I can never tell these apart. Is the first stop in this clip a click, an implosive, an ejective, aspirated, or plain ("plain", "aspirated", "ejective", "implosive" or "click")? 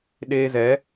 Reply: implosive